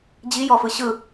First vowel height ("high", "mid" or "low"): high